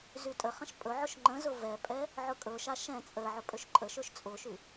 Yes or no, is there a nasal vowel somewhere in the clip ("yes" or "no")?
yes